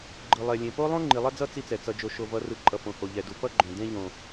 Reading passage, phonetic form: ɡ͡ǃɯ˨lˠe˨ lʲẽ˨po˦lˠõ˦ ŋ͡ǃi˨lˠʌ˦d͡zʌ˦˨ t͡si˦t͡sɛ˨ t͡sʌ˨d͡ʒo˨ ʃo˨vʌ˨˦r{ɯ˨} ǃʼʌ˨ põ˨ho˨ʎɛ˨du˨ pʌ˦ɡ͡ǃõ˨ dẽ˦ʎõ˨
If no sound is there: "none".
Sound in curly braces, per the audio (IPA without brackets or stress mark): ɯ˨